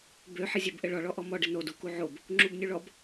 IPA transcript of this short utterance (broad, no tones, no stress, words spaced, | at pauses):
bøħɘzʲøb ʔɘɭɔ ɭɔʔɔmɔɖɘ nodu kuʕob | ŋ͡ǁubnʲuɭɔb